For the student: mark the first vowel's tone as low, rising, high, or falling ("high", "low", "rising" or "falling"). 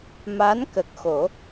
rising